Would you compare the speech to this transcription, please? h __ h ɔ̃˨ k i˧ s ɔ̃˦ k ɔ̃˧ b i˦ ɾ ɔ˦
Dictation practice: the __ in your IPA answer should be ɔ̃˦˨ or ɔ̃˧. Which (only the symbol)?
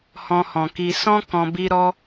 ɔ̃˧